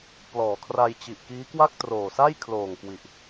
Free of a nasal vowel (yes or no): yes